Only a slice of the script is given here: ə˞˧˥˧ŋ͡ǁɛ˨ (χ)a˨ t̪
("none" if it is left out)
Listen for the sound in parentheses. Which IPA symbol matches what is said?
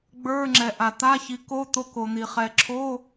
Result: ʔ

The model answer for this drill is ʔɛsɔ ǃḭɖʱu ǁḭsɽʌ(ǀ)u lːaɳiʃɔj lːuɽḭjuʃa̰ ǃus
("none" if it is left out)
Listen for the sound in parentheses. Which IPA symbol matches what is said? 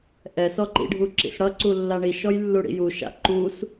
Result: ǀ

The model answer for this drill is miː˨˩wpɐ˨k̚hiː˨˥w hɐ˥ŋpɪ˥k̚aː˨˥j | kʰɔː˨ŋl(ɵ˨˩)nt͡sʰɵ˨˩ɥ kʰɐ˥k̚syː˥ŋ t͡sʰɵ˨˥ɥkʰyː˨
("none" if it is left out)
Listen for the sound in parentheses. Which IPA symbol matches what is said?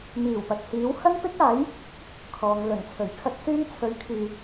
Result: ɵ˨˩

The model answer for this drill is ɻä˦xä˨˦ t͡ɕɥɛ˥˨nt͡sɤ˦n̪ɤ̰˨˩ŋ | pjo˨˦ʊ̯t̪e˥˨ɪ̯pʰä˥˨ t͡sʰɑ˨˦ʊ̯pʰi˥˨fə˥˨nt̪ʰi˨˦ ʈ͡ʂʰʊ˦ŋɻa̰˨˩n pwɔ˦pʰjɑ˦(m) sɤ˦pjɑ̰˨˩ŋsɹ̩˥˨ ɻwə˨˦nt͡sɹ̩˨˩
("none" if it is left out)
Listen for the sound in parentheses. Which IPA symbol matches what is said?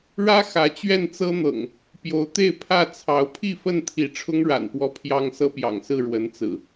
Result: ŋ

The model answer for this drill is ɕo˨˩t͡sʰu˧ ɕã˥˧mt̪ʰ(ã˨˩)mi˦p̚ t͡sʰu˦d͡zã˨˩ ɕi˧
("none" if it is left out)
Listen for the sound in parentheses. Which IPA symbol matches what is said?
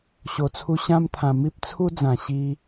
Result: ã˨˩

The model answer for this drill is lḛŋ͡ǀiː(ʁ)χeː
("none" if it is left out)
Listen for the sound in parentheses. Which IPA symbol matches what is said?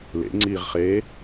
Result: ʁ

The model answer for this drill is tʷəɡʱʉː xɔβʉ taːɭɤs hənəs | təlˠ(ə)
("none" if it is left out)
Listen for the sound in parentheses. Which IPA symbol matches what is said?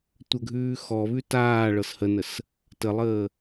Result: əː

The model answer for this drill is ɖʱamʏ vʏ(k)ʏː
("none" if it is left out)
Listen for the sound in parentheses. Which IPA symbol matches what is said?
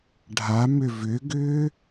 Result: ɡ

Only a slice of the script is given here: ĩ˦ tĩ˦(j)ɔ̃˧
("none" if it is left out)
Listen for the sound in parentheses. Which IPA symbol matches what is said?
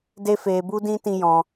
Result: j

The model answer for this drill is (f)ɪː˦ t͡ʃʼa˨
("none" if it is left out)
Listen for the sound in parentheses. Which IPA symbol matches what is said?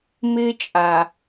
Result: m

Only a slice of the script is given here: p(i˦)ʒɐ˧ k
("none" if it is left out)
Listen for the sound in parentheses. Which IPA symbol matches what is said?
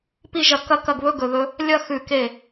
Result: i˦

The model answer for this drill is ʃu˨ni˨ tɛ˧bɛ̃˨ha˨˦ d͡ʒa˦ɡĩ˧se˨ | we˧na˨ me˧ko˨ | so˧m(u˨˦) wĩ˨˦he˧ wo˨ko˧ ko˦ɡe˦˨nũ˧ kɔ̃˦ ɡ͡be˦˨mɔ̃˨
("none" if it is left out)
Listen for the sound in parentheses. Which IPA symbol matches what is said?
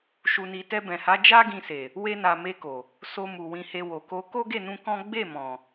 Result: u˨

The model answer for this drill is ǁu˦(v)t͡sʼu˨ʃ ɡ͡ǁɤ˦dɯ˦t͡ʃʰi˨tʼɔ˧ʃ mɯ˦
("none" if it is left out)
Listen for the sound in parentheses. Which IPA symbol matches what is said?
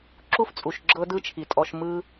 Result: f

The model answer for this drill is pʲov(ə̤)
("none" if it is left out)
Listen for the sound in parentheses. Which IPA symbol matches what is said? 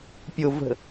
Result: ə̤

